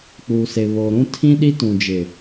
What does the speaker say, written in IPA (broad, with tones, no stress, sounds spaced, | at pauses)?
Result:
k͡p uː˨ s e˨ β oː˨ ɾ ũ˦ tʰ ĩ˦ ɗ i˦ t ũ˨ d͡ʒ ɪ˨